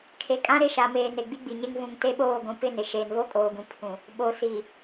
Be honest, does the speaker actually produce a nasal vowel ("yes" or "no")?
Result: yes